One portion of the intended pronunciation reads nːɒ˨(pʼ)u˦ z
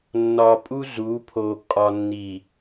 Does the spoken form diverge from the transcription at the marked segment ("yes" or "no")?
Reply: no